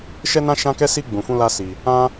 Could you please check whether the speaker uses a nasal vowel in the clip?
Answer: yes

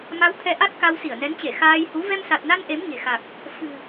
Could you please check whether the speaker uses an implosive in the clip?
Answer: no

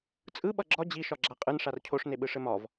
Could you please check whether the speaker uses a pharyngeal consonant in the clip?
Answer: no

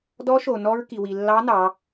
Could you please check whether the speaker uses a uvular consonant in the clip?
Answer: no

